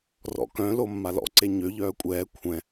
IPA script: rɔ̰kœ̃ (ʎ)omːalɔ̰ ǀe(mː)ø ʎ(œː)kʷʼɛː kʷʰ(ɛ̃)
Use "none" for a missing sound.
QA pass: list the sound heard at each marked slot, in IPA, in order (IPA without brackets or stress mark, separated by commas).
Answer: l, ɲ, œː, ɛ̃